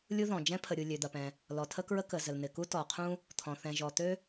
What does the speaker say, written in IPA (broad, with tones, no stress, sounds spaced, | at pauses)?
lʲ u˥ ð ɔ̃˩ d͡ʒ ɛ̃˥ pʰ ə˩ ɾʲ u˩ lʲ ø˩ d̪ ɐ˩ p ɛ̃˩ | l ɔ˩ tʰ ə˥ k ɹ ə˥ k ə˩ z ə˩ l n̪ ɪ˩ k u˥ t ɔ˩ qʰ ũ˥ | t̪ʰ ɔ̃˩ θ ɛ̃˩ ʒ ɔ˩ t̪ ø˥